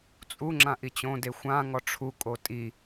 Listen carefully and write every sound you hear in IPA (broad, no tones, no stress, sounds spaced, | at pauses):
t͡sʼ u ŋ͡ǁ ã ʔ i t͡ɕ õ d e xʷ ã ŋ ɔ ʈ͡ʂʰ u kʼ o tʼ i